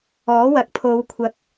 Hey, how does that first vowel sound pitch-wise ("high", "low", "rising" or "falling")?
rising